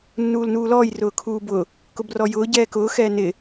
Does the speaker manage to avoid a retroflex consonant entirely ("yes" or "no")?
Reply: yes